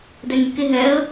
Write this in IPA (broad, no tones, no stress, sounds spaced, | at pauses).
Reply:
d ɛ ŋ y k e ɦ ɛ ə̯